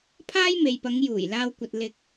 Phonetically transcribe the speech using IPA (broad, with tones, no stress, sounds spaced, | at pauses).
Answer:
pʰ aː˥ j m e˨ j p ɐ˨˧ ŋ j uː˨˩ j l aː˧ w kʷ ɐ˨ t̚ l ɪ˨ k̚